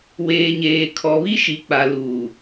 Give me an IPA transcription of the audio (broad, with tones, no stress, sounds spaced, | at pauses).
w eː˨ ɲ eː˨ kʰ ɔ˨ β i˦ ʃ i˨ k͡p a˨ l uː˨